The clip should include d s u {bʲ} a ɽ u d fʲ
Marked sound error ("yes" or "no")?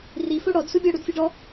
no